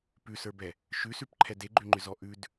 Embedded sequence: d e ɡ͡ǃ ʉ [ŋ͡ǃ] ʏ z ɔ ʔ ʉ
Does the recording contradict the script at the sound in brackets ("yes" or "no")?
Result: no